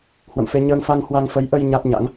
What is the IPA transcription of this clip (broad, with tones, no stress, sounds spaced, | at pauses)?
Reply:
h w ə̰˧˨ m f e˧ ɲ əː˧ ŋ f a˧ ŋ h w a˧ ŋ f ə˨˦ j ʔ ə˧ j ɲ a˦˥ t̚ ɲ a̰˧˥ ŋ